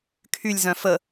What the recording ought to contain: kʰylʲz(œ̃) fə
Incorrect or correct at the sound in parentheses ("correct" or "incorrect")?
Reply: correct